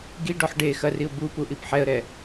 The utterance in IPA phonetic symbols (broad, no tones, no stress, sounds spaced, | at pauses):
ɡ i ɖ ɔ ħ ɖ e x ɐ r i ʊ̯ b u p u ʔ i p ħ ɛ ə̯ ɾ ɛ